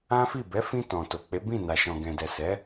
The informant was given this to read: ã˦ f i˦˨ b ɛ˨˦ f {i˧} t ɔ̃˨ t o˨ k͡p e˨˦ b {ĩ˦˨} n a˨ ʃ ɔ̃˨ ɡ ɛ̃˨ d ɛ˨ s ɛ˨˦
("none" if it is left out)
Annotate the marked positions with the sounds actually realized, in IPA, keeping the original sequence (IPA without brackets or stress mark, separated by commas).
ĩ˧, ĩ˦˨